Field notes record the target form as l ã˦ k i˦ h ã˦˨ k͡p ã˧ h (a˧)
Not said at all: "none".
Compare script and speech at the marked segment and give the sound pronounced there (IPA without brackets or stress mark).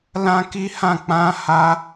a˧